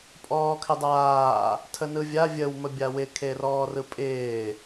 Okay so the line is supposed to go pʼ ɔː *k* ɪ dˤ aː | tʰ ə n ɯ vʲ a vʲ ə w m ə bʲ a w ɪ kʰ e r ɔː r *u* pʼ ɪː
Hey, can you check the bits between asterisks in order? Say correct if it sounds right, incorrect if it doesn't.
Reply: incorrect, incorrect

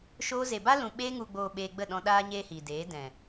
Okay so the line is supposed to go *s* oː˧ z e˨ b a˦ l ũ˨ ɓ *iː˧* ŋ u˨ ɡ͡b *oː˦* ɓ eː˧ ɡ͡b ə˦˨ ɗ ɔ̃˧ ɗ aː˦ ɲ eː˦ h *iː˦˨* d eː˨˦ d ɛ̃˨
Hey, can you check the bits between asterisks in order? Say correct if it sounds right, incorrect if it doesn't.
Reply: incorrect, incorrect, incorrect, incorrect

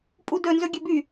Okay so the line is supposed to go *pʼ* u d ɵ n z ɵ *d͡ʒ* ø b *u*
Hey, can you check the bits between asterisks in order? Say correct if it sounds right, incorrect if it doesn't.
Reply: correct, incorrect, incorrect

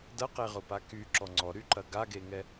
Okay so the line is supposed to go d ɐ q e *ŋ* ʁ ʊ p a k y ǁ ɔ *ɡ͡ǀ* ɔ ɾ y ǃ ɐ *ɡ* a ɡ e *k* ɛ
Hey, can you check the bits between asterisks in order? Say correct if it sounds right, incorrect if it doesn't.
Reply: incorrect, incorrect, correct, incorrect

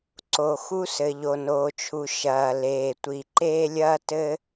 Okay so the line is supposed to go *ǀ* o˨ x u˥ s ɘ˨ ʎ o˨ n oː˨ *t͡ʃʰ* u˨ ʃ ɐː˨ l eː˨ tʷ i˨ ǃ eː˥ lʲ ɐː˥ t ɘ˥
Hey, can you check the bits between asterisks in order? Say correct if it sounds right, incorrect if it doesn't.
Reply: correct, correct

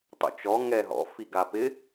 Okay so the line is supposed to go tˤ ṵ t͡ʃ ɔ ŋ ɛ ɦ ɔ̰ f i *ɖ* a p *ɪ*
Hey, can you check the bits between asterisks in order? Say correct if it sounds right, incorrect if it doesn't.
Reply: incorrect, correct

